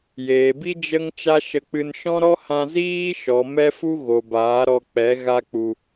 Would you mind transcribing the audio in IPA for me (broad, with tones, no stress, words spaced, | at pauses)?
jeː˨bi˦ d͡ʒə˦ŋ t͡ʃa˦ʃə˧k͡pɨ˧n ʃɔ̃˦ɾɔ˦hã˧ ziː˦ʃɔ˨ mɛ˦fu˦ ɣo˨baː˨˦ɾɔ˧k͡pɛ˨˦ ɣa˧k͡pu˨